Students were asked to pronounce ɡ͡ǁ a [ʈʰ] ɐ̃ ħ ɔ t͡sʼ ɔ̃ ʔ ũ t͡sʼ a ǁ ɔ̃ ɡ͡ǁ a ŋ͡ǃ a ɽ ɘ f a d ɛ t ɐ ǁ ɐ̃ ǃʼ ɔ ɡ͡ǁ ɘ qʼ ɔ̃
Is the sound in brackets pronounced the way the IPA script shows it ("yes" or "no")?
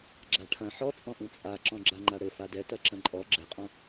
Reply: yes